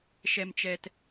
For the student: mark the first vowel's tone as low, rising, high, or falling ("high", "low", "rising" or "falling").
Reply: low